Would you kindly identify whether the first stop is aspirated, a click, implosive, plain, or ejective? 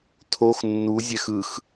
aspirated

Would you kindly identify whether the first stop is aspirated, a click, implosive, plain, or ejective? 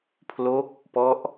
aspirated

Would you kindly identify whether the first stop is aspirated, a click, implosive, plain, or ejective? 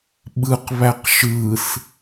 implosive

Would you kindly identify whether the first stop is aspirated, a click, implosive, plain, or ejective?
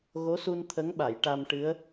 aspirated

